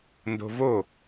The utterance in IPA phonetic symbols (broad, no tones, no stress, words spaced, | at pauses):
ndo̤vo